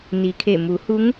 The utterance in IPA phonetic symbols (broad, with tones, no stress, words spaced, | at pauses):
ni˩kʰe˧˩ mu˩˧hu˧˥ŋ